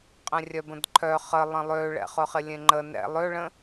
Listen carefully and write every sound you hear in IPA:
qʼẽrʲœbə̃dǃʰœ χəlˠə̃ lˠøɭɛ̰χʊχɪ lʲẽŋ͡ǃə nɛ̰ lˠøɭə̃

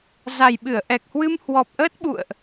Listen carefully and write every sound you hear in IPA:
za˨˩jɓɨ˧˩ə̯ʔɛ˨˩k̚hwɨ˧m hwɔ˨˩p̚ʔəː˦˥t̚ɓṵ˧˨ə̯ʔ

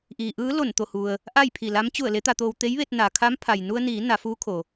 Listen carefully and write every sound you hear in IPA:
ʔiː˩ʔɯː˧˥ lo˧˩nt̪o˧˩hu˩ə̯ | ʔa˥˨j pʰi˧˩la˧˥m t͡ɕu˧˩ə̯ le˧˥t̪a˧t̪oː˧w t̪e˧˥jʋe˧t̚ na˩kʰa˧˥m pʰa˩j nu˧ə̯niː˩˧ na˩˧fuː˧˥kʰo˩

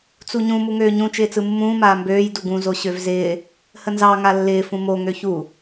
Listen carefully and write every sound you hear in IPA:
t͡suɲũ muŋøːɲũ t͡ʃɪːt͡sɯmːũː maːmbøːj duɡũ zoɕøvzɪː | hənzɑ ŋalːɪː fũmo ŋøçu

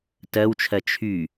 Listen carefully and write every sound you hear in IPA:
tɜwt͡ʃʰɜ t͡ʃʰy

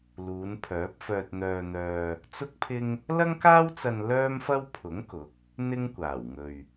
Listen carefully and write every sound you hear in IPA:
luː˨˧npʰœː˨˥p̚ fœː˧t̚n̪œː˧n̪œː˧ | t͡sʊ˥k̚pʰɪ˥ŋ | lɐ˥ŋkaː˥wt͡sɐ˧n lœː˥mfɐ˥w pʰʊ˨˥ŋkʊ˨˥k̚ | n̪ɪ˥ŋkʷaː˨˩wŋɵ˨ɥ

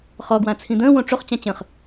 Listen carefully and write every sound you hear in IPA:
χɔɡwã t͡sʰĩd̪ə̃ːwõ ʈ͡ʂoχt͡ɕã t͡ɕə̃χ

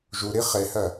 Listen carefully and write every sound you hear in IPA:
ʒuɾi χehɜ

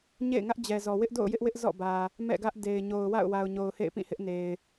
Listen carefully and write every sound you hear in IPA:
ɲḛ˦˨ɪ̯ ŋä˦ʔd͡ʑɛ˨zɔ˨ wɪ˦ʔdo̰˦˨ʊ̯jɪ˦ʔ wɪ˦ʔ zɔ̰˦˨bä˨ | mɛ̰˦˨ɡä˦ʔde˨ɪ̯ ɲo˨ʊ̯wa̰˦˨ʊ̯wa˨ʊ̯ ɲo˨ʊ̯hḛ˦˨ɪ̯pĩ˦˨ hɪ˦ʔne˨ɪ̯

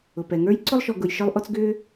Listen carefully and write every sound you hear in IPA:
ʊ˩pɛ˩ŋə˞˦j ǀʊ˥lˠʃɔ˨ ɡʊ˨j ʃə˞˦lˠʔɔ˦t͡sɡʏː˥

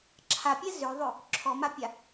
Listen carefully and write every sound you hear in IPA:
ǁʰapʲɛ zøðˤø | ǁʰɔmapʲa

